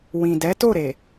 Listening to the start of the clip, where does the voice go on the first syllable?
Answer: low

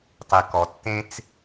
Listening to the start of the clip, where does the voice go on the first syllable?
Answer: low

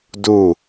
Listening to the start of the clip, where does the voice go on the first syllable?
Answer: falling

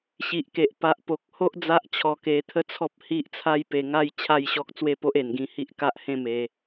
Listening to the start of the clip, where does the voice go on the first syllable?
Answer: low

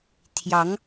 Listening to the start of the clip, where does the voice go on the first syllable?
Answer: rising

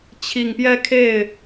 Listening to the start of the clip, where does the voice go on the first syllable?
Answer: low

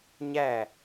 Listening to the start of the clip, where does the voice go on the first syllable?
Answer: falling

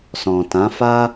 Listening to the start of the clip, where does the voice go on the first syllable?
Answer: low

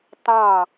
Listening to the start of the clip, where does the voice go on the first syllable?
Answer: falling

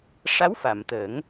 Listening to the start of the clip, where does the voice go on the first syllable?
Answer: rising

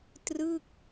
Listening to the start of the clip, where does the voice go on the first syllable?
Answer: falling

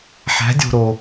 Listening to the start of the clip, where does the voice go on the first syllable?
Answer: rising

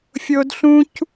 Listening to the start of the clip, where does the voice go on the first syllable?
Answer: high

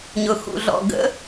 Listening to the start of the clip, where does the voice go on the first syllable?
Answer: low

